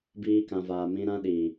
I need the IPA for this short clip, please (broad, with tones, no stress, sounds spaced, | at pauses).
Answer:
b iː˧ k ã˨ v aː˨ m ĩ˧ ɾ ã˧ ɗ iː˨